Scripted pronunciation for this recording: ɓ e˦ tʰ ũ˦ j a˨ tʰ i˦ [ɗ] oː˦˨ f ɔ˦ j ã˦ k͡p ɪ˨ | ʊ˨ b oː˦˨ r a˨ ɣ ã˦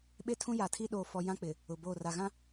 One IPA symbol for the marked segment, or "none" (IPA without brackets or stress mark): ɗ